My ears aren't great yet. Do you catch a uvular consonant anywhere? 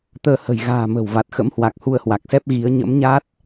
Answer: no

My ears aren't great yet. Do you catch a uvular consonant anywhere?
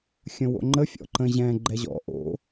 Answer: no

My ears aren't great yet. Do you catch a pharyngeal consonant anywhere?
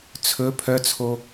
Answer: no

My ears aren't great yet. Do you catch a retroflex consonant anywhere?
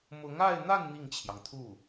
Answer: no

